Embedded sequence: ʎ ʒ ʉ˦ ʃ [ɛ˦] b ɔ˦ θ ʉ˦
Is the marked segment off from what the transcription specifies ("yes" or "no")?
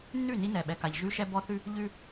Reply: no